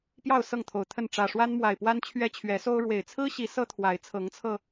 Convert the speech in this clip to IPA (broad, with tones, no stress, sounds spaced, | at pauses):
p j ɑ˥˨ ʊ̯ s ɤ˥˨ ŋ t̪ʰ o˨˩ ʊ̯ t̪ʰ ə˥˨ n ʈ͡ʂ ä˨˩ ʂ w a˦ n m w a˨˩ ɪ̯ p w a˦ n t͡ɕʰ ɥ ɛ˦ t͡ɕʰ ɥ ɛ˨˦ s o˦ ʊ̯ ɻ w e˨˩ ɪ̯ t͡sʰ ɹ̩˦ ɕ i˨˦ s ɤ˦ t̪ʰ w a˨˦ ɪ̯ t͡sʰ ɤ˨˦ ŋ t͡sʰ ɤ˧